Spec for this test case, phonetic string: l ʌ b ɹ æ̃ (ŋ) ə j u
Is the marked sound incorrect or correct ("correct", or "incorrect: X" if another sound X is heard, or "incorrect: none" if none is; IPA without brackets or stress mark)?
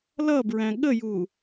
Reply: incorrect: ɠ